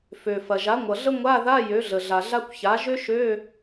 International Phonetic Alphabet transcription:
fø˩fɐ˩ ʒa˩˥ ŋʷʌ˩ɮə˥ ŋʷa˧˥˧ða˧˥˧ jø˩˥ɮə˩ɮa˩ɮa˥kʷ ça˩˥ ʒø˥ʃø˧˥˧

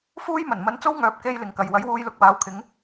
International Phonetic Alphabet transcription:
fuː˥jmɐ˨˩n mɐ˧nt͡so˥wŋœː˨˥p̚ ke˧j lɪ˨ŋkɐ˨j wɐ˨˥jwuː˧jlʊ˧k̚waː˨˧w kʰɪ˨˧ŋ

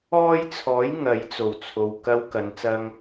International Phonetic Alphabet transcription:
ɔː˥jt͡sʰɔː˨˥j ŋɐ˨˧jt͡so˨˩wt͡sʰo˨w kɐ˧w kɐ˨˧nt͡sɐ˧ŋ

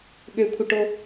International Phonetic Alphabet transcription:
ɠøkʷʰəʈo

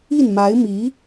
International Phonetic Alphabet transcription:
i˥˩nma˧˥ɪ̯mi˧˥

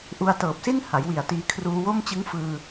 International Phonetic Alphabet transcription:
ʔu˧a̯tɤː˨˩p̚si˥˩n ha˩˦jwi˨˩a̯tiː˧ kʰruː˧wo˥˩mt͡ɕɯ˦˥ŋfɯː˧

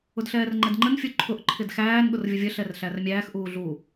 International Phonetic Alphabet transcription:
ʊdɬɛːrŋ͡ǃɛdŋ͡ǃən fʲuǃʰʊʔ ǃʰɪdxæːn ɠʊrvʲʊvʲə ɬɛrɬærmʲæːx ʔuːɮu

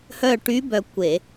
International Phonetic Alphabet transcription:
hœ˦˨ʈy˧˥ bœ˦˨kʷe˧˩˧

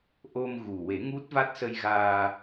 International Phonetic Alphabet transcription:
ʔo˧mɣu˨˩ we˨˩˦ŋu˦˥t̚va˦˥t̚ sə˧jɣaː˧

